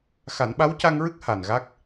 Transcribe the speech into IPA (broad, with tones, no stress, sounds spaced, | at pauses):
x a˨˩˦ n ɓ a˧˥ w c a˧ ŋ ɹ ɨ˦˥ k̚ h a˨˩ n ɣ a˦˥ k̚